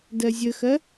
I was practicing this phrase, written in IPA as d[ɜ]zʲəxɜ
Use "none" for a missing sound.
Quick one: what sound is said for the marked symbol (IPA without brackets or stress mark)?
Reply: ɜ